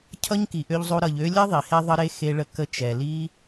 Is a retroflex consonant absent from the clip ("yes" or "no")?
no